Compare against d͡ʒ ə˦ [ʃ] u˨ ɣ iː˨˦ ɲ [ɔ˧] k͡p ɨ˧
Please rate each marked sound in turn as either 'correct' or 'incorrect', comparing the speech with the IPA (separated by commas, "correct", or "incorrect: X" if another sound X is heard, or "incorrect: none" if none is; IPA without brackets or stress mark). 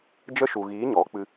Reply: correct, incorrect: ɔ˨˦